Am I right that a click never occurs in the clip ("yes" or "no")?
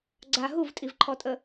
no